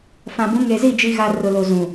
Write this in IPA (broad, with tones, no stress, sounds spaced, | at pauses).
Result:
f ã˨ b ũ˨˦ ŋ e˨ z i˦˨ d͡ʒ i˨ ɣ a˨ r ʊ˨ l o˨ z ũ˨